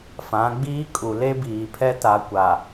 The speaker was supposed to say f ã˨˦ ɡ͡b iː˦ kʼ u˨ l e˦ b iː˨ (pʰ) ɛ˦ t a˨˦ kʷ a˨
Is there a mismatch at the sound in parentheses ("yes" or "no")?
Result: no